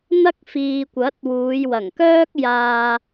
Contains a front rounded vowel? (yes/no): yes